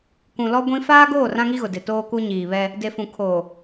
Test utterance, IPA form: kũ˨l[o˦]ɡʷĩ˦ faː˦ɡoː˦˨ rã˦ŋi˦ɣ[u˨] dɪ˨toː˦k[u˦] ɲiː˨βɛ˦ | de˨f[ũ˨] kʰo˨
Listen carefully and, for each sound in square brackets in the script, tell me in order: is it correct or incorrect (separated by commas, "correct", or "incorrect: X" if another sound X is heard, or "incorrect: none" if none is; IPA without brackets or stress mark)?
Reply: incorrect: ɔ˦, incorrect: ʊ˨, correct, correct